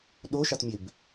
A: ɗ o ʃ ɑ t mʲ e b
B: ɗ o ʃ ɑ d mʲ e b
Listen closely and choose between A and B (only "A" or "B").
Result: A